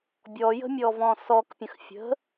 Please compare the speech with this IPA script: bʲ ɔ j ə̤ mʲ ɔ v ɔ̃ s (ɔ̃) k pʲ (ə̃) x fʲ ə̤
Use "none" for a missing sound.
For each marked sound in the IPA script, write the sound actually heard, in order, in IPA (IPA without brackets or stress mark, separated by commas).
ɔ, ə̃